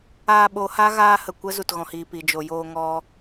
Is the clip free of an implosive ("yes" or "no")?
no